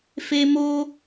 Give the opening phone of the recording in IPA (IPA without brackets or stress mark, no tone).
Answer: f